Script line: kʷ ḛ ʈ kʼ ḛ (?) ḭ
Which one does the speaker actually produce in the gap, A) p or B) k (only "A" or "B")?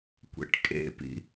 A